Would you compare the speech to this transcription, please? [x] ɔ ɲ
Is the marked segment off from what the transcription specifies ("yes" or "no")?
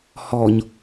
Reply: yes